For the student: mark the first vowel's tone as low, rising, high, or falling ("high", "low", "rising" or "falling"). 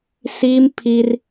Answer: high